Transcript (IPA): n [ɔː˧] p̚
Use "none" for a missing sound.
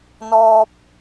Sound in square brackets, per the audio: ɔː˧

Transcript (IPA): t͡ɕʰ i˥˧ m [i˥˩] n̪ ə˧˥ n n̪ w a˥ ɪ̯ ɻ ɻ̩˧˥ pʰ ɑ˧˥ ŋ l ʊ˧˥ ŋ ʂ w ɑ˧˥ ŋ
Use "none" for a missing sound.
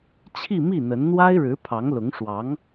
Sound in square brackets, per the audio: i˥˩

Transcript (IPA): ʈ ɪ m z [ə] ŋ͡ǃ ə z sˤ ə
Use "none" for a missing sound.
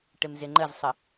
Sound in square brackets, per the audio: ɪ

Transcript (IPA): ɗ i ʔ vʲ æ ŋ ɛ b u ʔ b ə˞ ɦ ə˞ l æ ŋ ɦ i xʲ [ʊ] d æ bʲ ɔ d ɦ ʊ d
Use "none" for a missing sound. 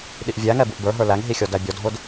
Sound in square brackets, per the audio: ɔ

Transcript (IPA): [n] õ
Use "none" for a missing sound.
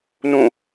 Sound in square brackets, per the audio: n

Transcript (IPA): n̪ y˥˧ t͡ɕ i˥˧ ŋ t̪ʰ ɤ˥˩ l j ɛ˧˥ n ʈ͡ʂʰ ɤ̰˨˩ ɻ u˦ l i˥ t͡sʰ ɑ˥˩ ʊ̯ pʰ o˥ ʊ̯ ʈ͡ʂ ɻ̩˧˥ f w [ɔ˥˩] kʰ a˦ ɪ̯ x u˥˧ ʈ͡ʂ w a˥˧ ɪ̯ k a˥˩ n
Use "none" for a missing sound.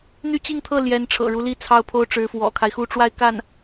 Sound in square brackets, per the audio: ɔ̰˨˩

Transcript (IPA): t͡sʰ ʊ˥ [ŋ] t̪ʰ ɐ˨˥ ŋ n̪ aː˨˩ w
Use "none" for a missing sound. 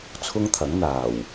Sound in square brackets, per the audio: ŋ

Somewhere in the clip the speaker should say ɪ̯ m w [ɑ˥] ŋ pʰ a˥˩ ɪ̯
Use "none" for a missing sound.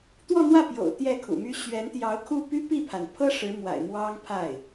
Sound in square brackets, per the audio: ɑ˥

